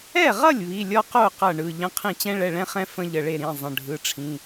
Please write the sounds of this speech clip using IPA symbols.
ɛ˥˩ ʁ ʌ˥˩ lʲ β i˩˧˩ lʲ ɔ˦ q o˥˩ q ʌ˥˩ ɳ ɯ˩˧˩ ʎ ə̃˦ qʰ ĩ˥˩ t͡ɕ ɛ̃˦ ɭ ɛ˩˧˩ ɭ ɛ̃˦ χ ɛ̃˦ f ə̃˦ ʎ ə˩˧˩ ɭ e˥˩ ɾ ĩ˩˧˩ zˤ ə̃˩˧˩ ɖʱ ɯ˩˧˩ ʈ͡ʂʰ ĩ˩˧˩

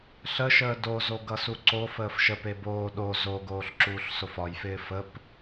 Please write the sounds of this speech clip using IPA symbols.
ɬ ə ʃ əː d o z o ɡ ʌ s u ǀ o f əː f ʃ ə p e b oː ɗ o z o ɡ oː ɬ ǁ uː ɬ s o f ɒ j f ɪː f ə p

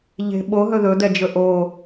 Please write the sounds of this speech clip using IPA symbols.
ʎ e̤ ɓ o ɦ ɵ ð ɵ d̪ ɛ d͡ʒ ɵ ʔ o

